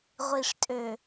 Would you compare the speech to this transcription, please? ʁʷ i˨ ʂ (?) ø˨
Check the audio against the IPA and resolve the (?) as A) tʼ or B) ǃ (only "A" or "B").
A